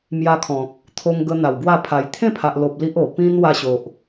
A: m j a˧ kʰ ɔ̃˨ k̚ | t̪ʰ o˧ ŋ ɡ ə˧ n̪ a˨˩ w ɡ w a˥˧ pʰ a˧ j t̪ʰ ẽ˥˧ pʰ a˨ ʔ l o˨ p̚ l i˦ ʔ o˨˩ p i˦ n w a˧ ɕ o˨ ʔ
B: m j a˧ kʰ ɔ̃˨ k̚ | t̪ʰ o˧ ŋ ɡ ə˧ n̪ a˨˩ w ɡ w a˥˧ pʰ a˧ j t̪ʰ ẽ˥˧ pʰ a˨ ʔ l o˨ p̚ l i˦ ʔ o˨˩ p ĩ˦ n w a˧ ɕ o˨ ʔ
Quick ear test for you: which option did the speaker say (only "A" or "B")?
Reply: B